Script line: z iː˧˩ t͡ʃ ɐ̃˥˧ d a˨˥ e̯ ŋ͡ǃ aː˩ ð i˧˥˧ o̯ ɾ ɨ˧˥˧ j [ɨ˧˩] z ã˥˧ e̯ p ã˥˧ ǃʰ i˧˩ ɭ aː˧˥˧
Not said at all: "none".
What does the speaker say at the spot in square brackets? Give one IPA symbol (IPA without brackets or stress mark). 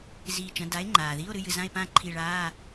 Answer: ɨ˧˩